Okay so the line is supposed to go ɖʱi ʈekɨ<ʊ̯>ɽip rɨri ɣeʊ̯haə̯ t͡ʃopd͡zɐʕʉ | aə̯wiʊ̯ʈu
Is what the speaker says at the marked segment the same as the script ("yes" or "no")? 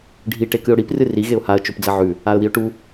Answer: yes